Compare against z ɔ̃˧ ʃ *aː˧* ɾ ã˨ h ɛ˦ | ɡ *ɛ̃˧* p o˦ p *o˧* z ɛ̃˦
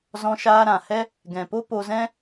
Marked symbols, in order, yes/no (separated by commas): yes, no, yes